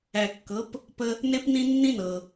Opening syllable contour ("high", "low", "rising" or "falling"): low